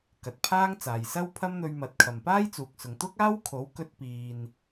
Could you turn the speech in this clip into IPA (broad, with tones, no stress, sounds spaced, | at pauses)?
k ɐ˨ t̚ pʰ aː˥ ŋ t͡s aː˨ j s ɐ˥ w pʰ ɐ˥ m n̪ ɵ˧ ɥ m ɐ˨˥ t̚ kʰ ɐ˨ m p aː˥ j t͡s uː˨ k̚ s ʊ˨ ŋ t̪ ʊ˥ k̚ aː˥ w kʰ o˨˥ w k ɵ˧ t̚ p iː˨ n